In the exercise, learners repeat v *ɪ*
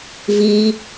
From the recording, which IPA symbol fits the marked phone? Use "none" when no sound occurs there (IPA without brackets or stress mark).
i